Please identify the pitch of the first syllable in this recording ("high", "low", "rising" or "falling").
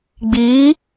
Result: rising